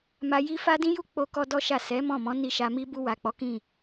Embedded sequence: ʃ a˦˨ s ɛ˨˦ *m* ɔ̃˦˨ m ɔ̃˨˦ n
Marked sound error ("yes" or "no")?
no